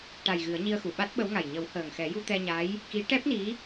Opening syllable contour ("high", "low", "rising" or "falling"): low